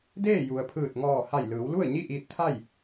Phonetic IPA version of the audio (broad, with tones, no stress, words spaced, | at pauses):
deː˥˨ju˩ə̯ pʰɯː˧˩t̚ŋɔː˧˩ ha˧˩jlɯː˩˧wlu˥˨ə̯ ɲi˥˨ʔiː˧t̚t̪ʰa˥˨j